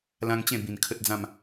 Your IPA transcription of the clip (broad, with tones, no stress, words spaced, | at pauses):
lã˦ŋ t͡ɕẽ˥˧ bĩ˧nkʰə˦t̚d͡zã˥˧m